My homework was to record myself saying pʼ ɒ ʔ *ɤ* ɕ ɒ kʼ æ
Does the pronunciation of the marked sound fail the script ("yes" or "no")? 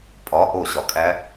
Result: yes